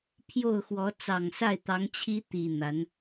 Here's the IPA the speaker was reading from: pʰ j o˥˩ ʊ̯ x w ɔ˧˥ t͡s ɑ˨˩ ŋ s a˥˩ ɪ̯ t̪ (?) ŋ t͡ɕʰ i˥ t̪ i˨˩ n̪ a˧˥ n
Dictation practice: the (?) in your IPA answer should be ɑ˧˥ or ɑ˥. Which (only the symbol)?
ɑ˧˥